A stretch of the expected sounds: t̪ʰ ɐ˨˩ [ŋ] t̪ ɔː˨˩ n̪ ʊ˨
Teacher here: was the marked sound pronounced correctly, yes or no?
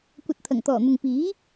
yes